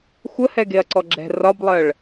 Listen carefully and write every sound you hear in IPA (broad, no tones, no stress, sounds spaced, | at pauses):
xʷ ə h ɛ ɡ e ɐ̯ ǀ ɔ ɡ͡ǁ ɛ̤ r ɒ b lˠ ɜ ɭ